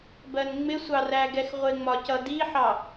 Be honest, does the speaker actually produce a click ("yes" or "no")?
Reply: no